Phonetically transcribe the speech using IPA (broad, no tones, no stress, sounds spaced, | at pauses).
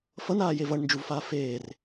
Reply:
f ʌ n aː j e v ʌ ɳ n d͡ʒ u v f aː f eː r